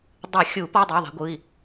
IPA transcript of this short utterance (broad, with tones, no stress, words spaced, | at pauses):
dˤɯ˨˩˦xʲu˨˩˦ pɔ˧˥˧dˤi˩˧˩ðˤɛ̤˨˦ɡʷɯ˩˧˩i̯